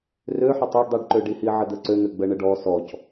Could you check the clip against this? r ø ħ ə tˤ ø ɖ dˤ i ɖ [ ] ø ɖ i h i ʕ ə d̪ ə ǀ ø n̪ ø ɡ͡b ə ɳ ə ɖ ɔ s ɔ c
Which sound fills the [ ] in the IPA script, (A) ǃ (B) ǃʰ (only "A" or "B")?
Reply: A